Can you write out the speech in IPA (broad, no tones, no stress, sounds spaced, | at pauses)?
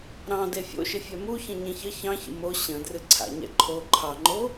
ɾ ɑ̃ d e fʲ o̰ ʃ ɪ fʲ ɛ m u ç ə̃ ɲ ẽ ç ə ç ɑ̃ ç ə̰ m o ɕ ə̃ d r ɨ ǀʰ a̰ ɲ ɛ̰ ǃʰ o ǃʰ ɑ ŋ͡ǃ o